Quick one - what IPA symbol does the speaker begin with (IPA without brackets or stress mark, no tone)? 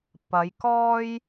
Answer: p